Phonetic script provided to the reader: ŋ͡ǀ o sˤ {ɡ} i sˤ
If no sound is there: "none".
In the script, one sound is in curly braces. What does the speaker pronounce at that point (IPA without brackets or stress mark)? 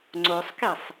k